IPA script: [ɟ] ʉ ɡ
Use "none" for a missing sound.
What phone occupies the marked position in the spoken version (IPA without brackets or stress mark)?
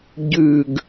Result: ɟ